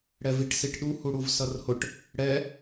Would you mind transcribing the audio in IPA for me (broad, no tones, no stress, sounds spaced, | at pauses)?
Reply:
ɽ ɛ v i ʈ s i ʈ ɗ u h u ɽ u v s ʌ r h ʊ ʈ | ɽ ɛ